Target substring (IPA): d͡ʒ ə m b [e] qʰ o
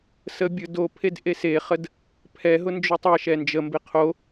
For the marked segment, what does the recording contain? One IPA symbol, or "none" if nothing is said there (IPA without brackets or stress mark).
e